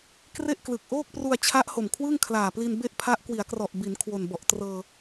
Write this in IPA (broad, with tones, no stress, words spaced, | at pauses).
kre˥˩ʔklɯ˨˩k̚ ʔoː˥˩k̚pru˧a̯t͡ɕʰa˦˥ʔ ho˨˩mkʰwɯ˥˩ŋkʰlaː˨˩pli˧n be˥˩ʔpʰa˦˥ʔ kwi˩˦a̯krɔ˨˩ʔbi˩˦n kʰwo˨˩nbɔ˨˩ʔtrɤː˧